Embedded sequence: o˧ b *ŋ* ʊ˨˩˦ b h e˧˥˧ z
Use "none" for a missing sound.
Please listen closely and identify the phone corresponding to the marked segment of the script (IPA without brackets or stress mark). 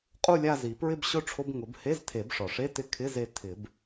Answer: ŋ